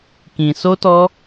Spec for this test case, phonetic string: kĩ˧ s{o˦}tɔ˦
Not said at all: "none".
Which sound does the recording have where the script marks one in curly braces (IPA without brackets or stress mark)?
o˦